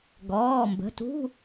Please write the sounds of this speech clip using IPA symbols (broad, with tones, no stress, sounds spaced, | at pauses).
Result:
ɡ ɔː˩˧˩ m b ə̤˩˧˩ t ṳ˧˥˧